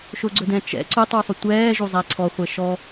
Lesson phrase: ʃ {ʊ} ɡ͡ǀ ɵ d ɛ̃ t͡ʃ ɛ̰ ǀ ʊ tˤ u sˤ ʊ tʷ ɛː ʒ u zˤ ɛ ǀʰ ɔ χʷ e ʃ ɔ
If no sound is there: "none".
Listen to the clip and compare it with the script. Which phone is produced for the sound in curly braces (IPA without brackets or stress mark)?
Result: ʊ